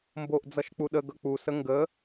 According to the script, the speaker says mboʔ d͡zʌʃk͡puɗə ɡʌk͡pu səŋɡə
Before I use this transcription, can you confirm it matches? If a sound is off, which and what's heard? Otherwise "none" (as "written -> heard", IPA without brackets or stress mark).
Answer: none